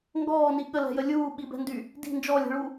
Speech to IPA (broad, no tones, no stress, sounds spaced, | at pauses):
ŋ ɡ ɔː n i ɠ ə l ɛ̤ j ə lʲ uː ɓ i b ɛ̤ n d y | d i̤ n d͡ʒ ɔ lʲ ɛ̤ ɭ u